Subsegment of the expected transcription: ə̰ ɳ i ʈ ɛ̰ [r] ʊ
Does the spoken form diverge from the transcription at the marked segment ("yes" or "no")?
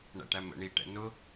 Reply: yes